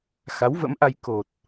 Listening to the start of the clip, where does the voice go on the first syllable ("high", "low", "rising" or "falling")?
rising